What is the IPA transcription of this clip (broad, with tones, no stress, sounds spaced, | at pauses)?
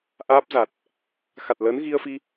ʔ aː˦˥ p̚ z a˨˩ t̚ | x a˨˩ t̚ l əː˨˦ n ɣ i˧ ə̯ f i˧